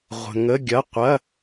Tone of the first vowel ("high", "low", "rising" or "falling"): low